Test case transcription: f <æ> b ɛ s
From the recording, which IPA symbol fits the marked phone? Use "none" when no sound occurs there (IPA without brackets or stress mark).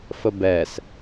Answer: ə